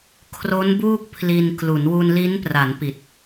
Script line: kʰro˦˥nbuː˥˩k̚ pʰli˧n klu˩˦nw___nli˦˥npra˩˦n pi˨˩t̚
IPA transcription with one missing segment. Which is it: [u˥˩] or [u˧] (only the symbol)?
u˧